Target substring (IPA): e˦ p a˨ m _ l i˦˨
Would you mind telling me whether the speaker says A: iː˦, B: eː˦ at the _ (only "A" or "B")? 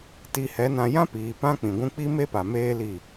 B